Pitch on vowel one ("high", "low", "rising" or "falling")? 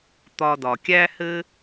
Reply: low